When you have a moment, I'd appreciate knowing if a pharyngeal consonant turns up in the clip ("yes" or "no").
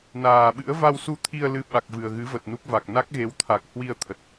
no